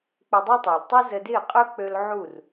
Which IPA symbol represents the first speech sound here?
k͡p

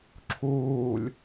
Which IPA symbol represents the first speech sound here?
ǁʰ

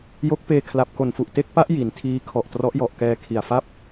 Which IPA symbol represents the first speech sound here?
j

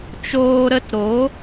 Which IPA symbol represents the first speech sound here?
t͡ʃ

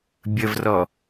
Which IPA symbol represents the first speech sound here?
bʲ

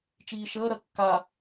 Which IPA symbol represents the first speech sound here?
t͡ʃ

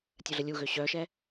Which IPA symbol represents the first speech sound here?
tʲ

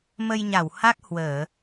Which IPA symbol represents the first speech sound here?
m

